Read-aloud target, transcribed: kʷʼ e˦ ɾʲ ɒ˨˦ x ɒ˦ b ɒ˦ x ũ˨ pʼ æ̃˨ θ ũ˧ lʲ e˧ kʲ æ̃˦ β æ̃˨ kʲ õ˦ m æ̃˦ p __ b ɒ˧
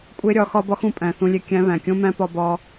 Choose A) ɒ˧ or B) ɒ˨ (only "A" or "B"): A